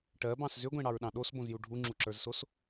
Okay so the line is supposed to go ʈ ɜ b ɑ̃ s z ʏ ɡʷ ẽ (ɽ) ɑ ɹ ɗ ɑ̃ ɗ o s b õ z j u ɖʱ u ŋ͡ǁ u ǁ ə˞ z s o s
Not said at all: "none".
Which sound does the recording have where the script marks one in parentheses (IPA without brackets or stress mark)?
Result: ɽ